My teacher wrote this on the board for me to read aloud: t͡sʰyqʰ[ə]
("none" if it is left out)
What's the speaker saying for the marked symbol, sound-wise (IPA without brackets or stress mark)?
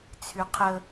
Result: ə